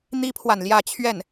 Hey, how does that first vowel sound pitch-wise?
high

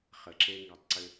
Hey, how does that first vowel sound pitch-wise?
low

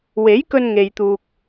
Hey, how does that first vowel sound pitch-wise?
rising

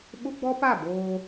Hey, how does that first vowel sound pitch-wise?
high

